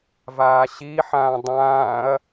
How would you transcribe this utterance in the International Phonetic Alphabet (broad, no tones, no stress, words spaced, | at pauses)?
vaːɕiħãː dˤãːɐ̯